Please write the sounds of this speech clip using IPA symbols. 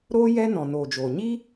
ɾoː˦ jɛ˦nɔ̃˨ noː˨d͡ʒoː˨ ɲi˦

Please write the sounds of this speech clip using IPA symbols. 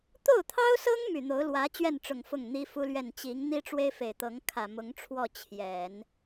t̪o˥˩ʊ̯t̪ʰɑ˥ʊ̯sɤ˥ŋ my˨˩n̪o˧˥ʊ̯lwä˧˥ t͡ɕɥɛ˥˩nʈ͡ʂʊ˨˩ŋ fʊ˥˩ŋn̪i˥fu˥lɥɛ˥˩n t͡ɕi˧˥ŋ n̪i˥ʈ͡ʂwe˥ɪ̯fe˨˩ɪ̯t̪ɤ˧˥ŋ kʰä˨˩mʊ˧˥ŋʈ͡ʂʰwɔ˥˩ t͡ɕʰjɛ˨˩˦n

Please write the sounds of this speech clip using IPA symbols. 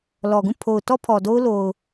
lɔ˨ɡũ˦˨ pʰo˨ʊ̯ tɔ˦ pʰɔ˨do˦ʊ̯ lo˨ʊ̯

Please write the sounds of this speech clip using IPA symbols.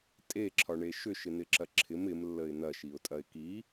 tʼeǁʰɒɳe ʃʏʃɪn̪ɪǁɐ ǁʰɪm ɪmlːəɪ̯ n̪ɐʃiʊ̯tʼɐɪ̯ ki

